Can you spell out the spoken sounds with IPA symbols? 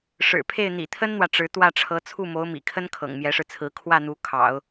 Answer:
ʂ ɻ̩˨˩ pʰ e˥˩ ɪ̯ n̪ ḭ˨˩ t̪ʰ ə˥ n n̪ w ä˨ ʈ͡ʂ ɻ̩˧˥ t̪ w ä˥˩ ʈ͡ʂʰ ɤ˧˥ t͡sʰ u˥˩ m o˧˥ ʊ̯ m ḭ˨˩ kʰ ə˥ n kʰ ɤ̰˨˩ ŋ m j ɛ˧˥ ʂ ɻ̩˧ t͡sʰ ɹ̩˧˥ kʰ w ä˥˩ n̪ u˧˥ kʰ ɑ̰˨˩˦ ʊ̯

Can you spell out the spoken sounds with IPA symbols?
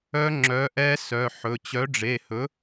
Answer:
œ˦˥ ŋ͡ǁ œ˨˥ ʔ ɛ˦˥ s œ˩˧˩ ħ ɵ˩˧˩ t͡ɕ œ˨˥ ɖ͡ʐ e˩˧˩ h ɵ˨˥

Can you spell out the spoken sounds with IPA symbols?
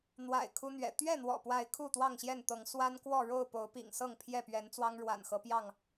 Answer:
n̪ w a̰˨˩ ɪ̯ kʰ u˦ n̪ ɥ ɛ̰˨˩ t̪ ɥ ɛ˥˨ n̪ w ɔ̰˨˩ p w a˨˦ ɪ̯ kʰ u˥˨ t̪ w ɑ˥˨ ŋ ɕ j ɛ˥˨ n t̪ ɤ˨˦ ŋ s w a˦ n k w ɔ˥˨ ɻ o˥˨ ʊ̯ p o˨˦ ʊ̯ p ḭ˨˩ ŋ s ɤ˥˨ ŋ pʰ j ɛ˥˨ p ɥ ɛ˨˦ n t͡s w ɑ˦ ŋ ɻ w a̰˨˩ n x ɤ˦ p j ɑ˥˨ ŋ

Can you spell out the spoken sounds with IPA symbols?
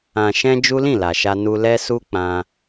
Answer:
ã˨ ʃ ɛ̃˧ d͡ʒ u˦ l ĩ˦˨ l a˨ ʃ a˧ n u˧ l ɛ˦ s u˦ k͡p ã˧

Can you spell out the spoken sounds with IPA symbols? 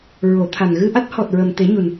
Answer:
ɹ o˨˩˦ t̪ʰ a˨˩ n ɣ ɨ˧ ʔ a˦˥ t̚ h ɔ˨˩ t̚ ɹ ə˨˩ m t̪ e˨˩˦ ɲ u˨˩ n

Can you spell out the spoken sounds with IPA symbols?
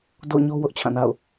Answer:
d o̰˦˨ ʊ̯ ɲ o˦ w ʊ˦ ʔ t͡ɕʰ ã˦˨ n a̰˦˨ ʊ̯

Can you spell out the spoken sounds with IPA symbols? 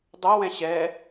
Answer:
dˤ ɐ w ɛ̃ ɕ ɛ

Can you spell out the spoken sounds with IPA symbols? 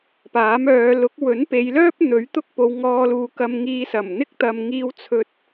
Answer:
p aː˨˥ m œː˨˧ l ʊ˨˥ k̚ w ɵ˨˥ n p e˨˧ j l œː˥ p̚ n̪ ɵ˨˥ ɥ t̪ ʊ˥ k̚ p o˨˧ w ŋ ɔː˧ l uː˨ k ɐ˧ m ŋ iː˧ s ɐ˨˩ m n̪ ɪ˥ k̚ t̪ ɐ˨ m ŋ iː˧ w t͡sʰ ɵ˨ t̚

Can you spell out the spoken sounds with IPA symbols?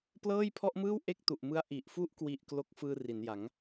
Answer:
p l ɤː˥˩ j pʰ ɔ˥˩ ʔ m ɯː˥˩ w ʔ e˥˩ k̚ t u˨˩ ʔ m ɯ˦˥ a̯ ʔ i˨˩ ʔ f u˥˩ ʔ k w i˨˩ ʔ k l o˦˥ k̚ f ɯː˧ r i˩˦ n j a˩˦ ŋ

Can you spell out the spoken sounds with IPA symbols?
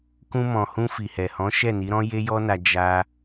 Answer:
k ũ˧ m ɔ̃˨ h ũ˧ f i˨ h ɛ˨ h ɔ̃˨˦ ʃ ɛ˦˨ n i˨˦ ɾ ɔ̃˦ j e˦ j ɔ˦ n a˧ d͡ʒ a˦

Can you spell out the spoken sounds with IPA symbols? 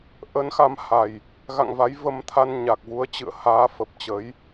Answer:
ʔ ə˨˦ n x a˨˦ m h a˨˩ j | ɣ a̰˧˨ ŋ v a˨˦ j v ə˧ m t̪ʰ a˧ n ɲ a˨˩ k̚ v u˨˦ ə̯ t͡ɕ ɨ̰˧˨ ə̯ h aː˨˦ f ə˨˩ p̚ t͡ɕ ə˨˦ j

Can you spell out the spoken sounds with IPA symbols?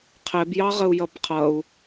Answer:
qʰ ɛ b j ɑ ʁ ə u̯ j ʌ b qʰ ʌ u̯

